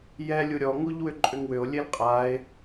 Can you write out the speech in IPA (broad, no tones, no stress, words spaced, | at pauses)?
jɛ lʲuɾʲɔ ŋuʎwʏǃʼʏŋwʏo̯ lʲelqʼae̯